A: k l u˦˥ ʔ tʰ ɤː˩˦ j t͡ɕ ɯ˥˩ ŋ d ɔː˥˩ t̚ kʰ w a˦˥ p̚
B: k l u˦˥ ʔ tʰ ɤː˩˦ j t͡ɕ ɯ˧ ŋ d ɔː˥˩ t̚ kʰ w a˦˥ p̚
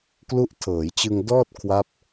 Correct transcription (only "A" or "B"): B